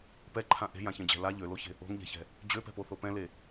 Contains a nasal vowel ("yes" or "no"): yes